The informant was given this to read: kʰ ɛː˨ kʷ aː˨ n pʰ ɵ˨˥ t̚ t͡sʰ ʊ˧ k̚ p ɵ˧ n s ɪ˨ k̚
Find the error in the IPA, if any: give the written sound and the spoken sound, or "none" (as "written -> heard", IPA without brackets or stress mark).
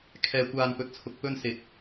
pʰ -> p